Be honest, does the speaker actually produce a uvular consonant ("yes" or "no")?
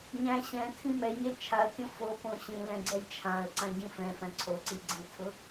no